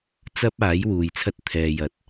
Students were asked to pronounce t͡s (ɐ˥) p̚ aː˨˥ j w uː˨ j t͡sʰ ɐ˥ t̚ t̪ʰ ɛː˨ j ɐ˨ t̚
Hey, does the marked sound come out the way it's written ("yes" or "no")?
yes